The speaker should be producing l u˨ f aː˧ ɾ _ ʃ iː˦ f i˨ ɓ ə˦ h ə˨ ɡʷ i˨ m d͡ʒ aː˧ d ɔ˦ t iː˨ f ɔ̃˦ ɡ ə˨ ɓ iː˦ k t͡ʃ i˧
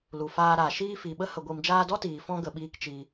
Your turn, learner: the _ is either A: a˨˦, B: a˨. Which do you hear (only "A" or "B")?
B